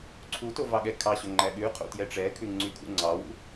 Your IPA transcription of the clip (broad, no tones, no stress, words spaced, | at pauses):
ǀʰuto vɑɠɛkʰɑɕɵ ŋ͡ǃæɠʉqʰo̰ tjɛʈ͡ʂɛkʰʉ ŋ͡ǀykʰṵŋ͡ǀɑwṵ